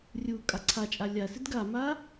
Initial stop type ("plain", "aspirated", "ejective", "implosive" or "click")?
ejective